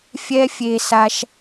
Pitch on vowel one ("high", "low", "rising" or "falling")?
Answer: high